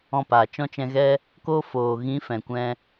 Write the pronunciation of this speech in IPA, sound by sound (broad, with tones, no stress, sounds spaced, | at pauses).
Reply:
ɔ̃˧ p aː˨ t͡ʃ ɔ̃˧ t͡ʃ ɛ̃˧ ɣ ɛ˦ | k o˧ f oː˨ ɣ ĩ˨˦ f ɛ̃˨ kʷ ɛ̃˧